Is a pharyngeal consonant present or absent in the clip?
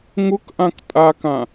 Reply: absent